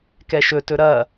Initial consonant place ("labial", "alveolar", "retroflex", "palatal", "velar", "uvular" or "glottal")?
velar